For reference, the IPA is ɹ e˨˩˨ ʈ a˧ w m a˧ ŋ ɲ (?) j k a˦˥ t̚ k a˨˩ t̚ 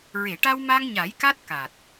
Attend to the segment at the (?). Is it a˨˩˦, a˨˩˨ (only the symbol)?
a˨˩˦